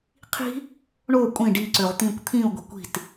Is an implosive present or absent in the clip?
absent